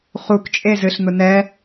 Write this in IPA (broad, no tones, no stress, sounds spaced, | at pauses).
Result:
χ u k t͡ʃʼ e z ɨ ɬ n̪ ʊ n ɛ